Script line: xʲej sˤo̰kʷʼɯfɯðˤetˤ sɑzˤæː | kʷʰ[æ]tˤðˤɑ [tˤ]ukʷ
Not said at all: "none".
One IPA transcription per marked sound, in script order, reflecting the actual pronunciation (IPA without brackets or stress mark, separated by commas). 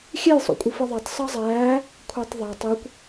æ, tˤ